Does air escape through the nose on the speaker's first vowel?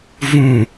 yes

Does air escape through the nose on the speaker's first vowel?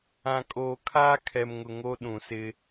yes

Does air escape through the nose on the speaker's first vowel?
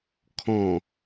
yes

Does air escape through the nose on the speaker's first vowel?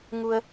no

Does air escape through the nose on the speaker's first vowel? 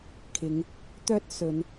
no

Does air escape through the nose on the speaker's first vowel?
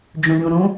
yes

